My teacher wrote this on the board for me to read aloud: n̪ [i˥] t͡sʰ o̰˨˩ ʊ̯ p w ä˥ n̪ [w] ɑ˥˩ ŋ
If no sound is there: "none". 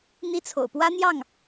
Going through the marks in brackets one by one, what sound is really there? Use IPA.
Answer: i˥, j

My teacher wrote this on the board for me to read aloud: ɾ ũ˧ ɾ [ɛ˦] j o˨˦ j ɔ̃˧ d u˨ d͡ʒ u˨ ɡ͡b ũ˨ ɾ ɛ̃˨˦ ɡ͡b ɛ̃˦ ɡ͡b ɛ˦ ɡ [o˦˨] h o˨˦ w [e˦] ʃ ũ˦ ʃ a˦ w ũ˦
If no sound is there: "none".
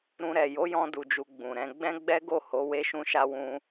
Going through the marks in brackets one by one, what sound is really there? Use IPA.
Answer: ɛ˨, o˦˨, e˦

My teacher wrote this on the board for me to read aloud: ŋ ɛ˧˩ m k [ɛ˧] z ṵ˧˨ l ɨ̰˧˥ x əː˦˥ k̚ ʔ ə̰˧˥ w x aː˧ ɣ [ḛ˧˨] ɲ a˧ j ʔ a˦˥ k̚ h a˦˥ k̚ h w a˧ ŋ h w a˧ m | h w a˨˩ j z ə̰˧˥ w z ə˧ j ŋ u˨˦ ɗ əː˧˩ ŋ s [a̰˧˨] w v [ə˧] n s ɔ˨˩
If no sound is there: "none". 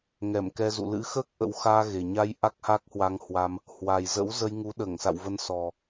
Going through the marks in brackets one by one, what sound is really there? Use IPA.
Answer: ɛ˧, e˨˩, a̰˧˨, ə˧

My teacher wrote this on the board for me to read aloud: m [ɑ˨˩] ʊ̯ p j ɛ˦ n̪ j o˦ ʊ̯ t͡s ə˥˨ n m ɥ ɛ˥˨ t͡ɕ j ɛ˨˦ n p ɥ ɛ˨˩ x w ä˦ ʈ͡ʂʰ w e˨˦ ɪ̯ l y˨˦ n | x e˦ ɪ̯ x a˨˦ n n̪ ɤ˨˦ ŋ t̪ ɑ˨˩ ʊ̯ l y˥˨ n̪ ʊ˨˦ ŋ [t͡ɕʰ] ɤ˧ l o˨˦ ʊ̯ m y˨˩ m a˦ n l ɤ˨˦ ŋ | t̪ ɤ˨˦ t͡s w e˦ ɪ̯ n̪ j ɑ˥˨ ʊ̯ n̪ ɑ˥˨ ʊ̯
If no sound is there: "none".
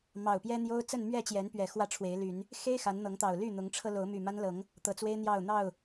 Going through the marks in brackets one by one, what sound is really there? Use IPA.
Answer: ɑ˨˩, ʈ͡ʂʰ

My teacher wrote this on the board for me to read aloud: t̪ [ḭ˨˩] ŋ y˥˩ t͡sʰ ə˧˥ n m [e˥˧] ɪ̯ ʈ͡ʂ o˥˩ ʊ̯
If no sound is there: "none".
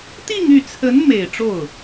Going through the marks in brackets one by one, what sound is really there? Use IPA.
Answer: i˥˧, e˨˩

